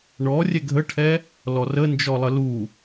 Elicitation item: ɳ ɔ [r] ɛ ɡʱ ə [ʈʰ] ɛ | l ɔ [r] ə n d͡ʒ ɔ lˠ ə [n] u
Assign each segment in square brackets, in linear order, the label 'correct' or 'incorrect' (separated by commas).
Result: incorrect, correct, correct, incorrect